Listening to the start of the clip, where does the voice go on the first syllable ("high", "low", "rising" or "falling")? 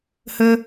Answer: high